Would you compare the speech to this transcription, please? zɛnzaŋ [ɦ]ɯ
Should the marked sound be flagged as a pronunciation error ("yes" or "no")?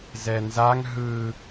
no